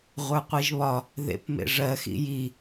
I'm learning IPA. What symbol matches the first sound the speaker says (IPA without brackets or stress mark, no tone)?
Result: ʁʷ